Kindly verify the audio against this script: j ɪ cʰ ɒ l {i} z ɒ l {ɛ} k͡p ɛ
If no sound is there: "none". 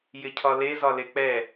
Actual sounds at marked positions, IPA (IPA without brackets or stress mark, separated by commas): e, e